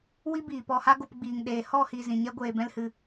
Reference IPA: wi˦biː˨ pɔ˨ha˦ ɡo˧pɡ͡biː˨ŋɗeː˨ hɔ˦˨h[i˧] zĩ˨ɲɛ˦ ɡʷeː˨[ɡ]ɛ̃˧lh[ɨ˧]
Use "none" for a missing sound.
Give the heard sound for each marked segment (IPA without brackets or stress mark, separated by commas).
i˨, b, ɨ˨